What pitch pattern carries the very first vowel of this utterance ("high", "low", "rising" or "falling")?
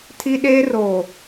high